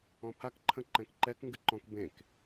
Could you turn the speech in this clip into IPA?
ɔ̃ pʰ a k ǃʰ ə̃ ǃ ɛ̃ k ǃ ɛ k ŋ ɡ ɨ ǃ ɔ̃ k b ẽ k

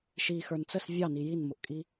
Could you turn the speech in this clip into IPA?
ʃ i x ə˞ n t͡s ə s vʲ ɑ n i j i n m ʊ ʔ kʼ i

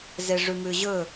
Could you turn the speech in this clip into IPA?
z e ʐ ʉ m ʉ ʑ ɵ

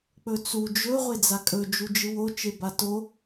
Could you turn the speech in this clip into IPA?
k͡p ɵ t͡s u d͡ʒ ɵ ʁʷ e d͡z a kʼ ɵ d͡ʒ u d͡ʒ ɨ w o t͡ʃ e b a t o

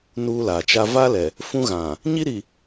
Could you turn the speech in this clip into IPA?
n uː˦ l aː˨ t͡ʃ a˦ v a˦ l ɛ˨ | f ũ˦ ɣ ã˨ | ɲ i˦ ɾ i˨

